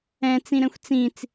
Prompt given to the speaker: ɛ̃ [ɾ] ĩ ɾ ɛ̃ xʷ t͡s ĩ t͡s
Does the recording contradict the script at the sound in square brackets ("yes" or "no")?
yes